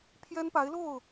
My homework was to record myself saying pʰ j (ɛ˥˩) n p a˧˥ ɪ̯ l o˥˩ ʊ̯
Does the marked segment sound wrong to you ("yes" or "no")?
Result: yes